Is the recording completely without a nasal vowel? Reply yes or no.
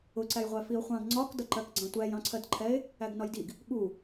no